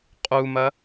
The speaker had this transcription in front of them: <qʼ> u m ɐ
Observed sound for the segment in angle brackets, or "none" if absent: qʼ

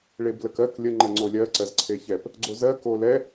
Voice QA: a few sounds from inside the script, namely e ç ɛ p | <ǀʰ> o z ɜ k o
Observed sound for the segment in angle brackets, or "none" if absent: ɡ͡ǀ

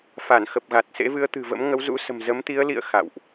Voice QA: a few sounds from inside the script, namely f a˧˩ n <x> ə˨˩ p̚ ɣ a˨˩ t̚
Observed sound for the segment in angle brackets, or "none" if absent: x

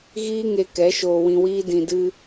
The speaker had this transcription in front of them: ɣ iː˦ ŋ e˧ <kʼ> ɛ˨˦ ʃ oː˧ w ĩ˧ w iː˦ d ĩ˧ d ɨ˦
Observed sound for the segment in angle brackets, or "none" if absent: k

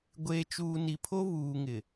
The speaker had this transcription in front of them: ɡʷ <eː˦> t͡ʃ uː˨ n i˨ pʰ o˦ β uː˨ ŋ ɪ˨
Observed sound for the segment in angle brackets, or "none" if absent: eː˨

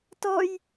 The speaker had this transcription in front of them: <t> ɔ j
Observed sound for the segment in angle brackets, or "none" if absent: t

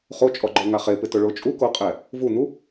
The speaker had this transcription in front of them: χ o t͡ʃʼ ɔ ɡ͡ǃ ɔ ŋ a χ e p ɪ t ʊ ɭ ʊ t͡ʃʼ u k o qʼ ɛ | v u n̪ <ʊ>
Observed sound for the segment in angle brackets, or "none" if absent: u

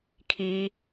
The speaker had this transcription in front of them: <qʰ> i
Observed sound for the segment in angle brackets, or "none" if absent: kʰ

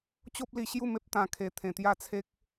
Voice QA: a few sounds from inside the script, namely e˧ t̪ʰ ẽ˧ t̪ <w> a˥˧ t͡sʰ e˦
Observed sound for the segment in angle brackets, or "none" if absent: j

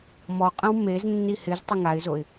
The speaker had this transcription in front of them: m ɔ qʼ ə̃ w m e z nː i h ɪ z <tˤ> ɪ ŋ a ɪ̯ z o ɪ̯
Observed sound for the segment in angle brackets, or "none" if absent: tˤ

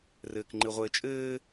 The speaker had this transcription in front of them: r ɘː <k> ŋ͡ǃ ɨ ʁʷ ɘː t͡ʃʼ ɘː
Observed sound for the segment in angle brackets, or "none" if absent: k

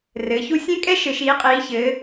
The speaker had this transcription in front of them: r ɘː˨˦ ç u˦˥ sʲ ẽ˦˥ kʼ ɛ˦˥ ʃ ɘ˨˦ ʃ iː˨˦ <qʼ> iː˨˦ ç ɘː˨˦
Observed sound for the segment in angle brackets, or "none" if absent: qʼ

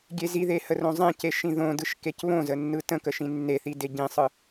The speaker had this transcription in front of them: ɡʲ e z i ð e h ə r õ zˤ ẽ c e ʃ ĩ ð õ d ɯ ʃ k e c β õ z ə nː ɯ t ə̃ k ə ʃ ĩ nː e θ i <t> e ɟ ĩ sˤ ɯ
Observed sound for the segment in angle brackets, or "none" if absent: d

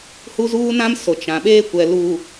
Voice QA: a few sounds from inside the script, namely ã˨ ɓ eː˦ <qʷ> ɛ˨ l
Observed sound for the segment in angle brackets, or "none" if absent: kʷ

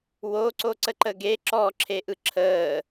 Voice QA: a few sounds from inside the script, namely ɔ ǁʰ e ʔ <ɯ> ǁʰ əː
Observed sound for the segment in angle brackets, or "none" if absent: ɯ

